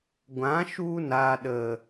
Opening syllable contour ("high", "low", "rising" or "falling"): rising